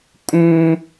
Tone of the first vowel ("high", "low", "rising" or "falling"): high